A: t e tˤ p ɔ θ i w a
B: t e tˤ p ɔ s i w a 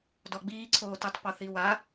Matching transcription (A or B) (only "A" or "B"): A